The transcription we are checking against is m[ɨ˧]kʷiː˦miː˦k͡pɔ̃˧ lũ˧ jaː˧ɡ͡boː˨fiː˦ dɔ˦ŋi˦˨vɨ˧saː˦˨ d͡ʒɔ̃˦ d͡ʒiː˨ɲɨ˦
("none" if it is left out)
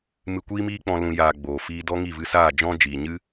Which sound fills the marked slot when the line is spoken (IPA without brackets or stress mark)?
ɨ˧